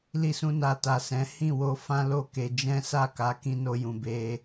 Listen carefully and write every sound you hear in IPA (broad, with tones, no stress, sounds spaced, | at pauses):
l i˧ s ũ˧ n a˨ t a˨ s ɛ̃˨˦ h ĩ˦˨ w o˧ f ã˦ l o˦˨ k e˧ d͡ʒ ɛ̃˦ s a˦˨ k a˨˦ k ĩ˦ n o˦ j ũ˧ b e˧